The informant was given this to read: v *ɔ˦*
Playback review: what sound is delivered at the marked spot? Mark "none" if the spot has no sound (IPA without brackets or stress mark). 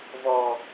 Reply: ɔ˦